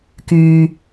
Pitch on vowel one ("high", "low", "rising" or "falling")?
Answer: low